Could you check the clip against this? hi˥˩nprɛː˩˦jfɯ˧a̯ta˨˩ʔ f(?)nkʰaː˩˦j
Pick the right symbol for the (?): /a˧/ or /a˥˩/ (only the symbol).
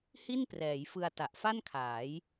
a˥˩